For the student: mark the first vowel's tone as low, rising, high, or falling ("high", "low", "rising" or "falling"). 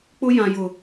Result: high